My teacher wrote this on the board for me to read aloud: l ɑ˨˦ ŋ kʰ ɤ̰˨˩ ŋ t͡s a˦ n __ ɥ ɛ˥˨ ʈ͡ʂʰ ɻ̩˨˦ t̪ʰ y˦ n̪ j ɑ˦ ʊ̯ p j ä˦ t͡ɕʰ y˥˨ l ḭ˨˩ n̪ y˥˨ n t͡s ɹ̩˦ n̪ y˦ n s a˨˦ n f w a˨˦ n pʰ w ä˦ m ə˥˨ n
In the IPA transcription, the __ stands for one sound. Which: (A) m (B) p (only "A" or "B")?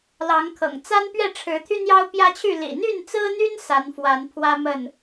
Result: B